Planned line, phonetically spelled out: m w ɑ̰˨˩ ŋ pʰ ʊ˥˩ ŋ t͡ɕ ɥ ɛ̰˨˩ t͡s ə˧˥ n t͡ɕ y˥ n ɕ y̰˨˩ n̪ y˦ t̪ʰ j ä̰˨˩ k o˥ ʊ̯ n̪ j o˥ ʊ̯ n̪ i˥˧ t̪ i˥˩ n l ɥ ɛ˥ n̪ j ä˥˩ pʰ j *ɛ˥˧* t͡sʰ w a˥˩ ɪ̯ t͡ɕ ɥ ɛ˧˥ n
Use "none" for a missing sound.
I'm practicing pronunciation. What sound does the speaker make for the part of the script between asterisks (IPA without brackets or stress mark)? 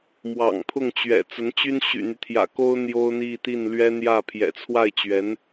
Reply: ɛ̰˨˩